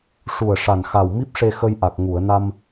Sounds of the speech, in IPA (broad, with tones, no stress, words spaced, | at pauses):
ʂu˨˩ə̯ ʂa˨˩nxa˨˩wmi˦˥p̚ʂe˧ xə˧jʔa˨˩k̚ ŋu˨˩˨ə̯na˧m